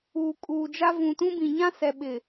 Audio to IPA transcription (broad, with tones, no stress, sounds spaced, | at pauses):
uː˨ kʼ uː˨ d͡ʒ a˦ v ũ˨ t ũ˦ b ĩ˨ ɲ ã˦ s ɛ˨ ɓ ɪ˨